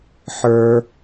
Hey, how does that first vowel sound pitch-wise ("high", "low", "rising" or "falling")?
high